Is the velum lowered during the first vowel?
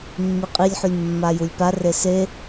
no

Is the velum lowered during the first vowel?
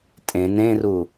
yes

